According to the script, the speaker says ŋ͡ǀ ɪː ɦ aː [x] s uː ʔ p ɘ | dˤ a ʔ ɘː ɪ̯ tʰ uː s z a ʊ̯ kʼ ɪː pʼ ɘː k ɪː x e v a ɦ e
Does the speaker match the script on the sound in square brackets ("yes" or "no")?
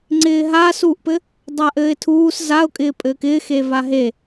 no